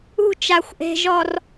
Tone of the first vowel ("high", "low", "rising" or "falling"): high